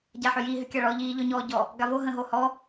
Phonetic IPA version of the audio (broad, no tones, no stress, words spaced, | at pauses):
ɟaħʏji ɦʏkʲaɭɔ ʎiːʎɔɲɔːɟɔ | ɡavo ɦə̃ɦohɔ